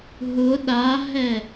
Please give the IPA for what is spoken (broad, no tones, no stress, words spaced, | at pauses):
ɦʊ ɗaɦɛ